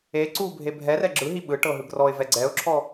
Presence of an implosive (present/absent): present